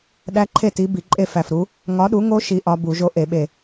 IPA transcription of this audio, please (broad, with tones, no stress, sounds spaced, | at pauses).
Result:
ɗ æ˦˥ ǃʰ e˥˨ t i˨˥ b i˧˩˧ ǃʼ e˥˨ f æ˧˩ f ɾ u˨˥ | ŋ ɒ˨˥ ɗ u˨˥ ŋ o˦˥ ʃ i˦˥ ʔ ɒ˦˥ b u˧˩˧ ʒ o˦˥ ʔ e˧˩˧ ɓ e˧˩